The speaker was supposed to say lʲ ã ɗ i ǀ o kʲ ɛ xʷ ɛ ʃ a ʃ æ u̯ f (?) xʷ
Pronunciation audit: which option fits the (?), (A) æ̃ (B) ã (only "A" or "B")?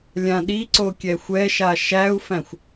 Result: A